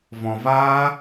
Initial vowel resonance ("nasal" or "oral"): nasal